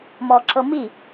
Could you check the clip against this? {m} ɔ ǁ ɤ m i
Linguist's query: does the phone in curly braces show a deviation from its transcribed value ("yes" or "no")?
no